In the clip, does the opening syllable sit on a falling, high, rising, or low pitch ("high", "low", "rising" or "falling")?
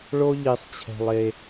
high